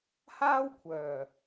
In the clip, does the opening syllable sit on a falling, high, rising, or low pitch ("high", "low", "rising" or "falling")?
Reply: high